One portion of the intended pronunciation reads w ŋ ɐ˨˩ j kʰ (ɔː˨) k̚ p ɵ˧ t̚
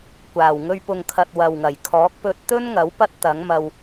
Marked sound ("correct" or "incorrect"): incorrect